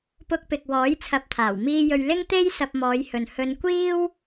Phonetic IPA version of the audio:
p ʊ˧ k̚ p ɪ˨ k̚ w ɔː˨˥ j t͡sʰ ɐ˨˥ p̚ t̪ʰ aː˨˩ w m iː˧ j ɵ˨ ɥ l ɪ˥ ŋ t̪ e˥ j s ɐ˧ p̚ m ɔː˨˧ j h ɵ˨ n h ɵ˧ n kʷ iː˥ w

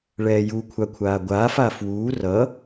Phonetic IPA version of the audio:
ɭ ɛː j u kʷʰ a kʷʰ aː ɡʷ aː f a f w uː r ʌ

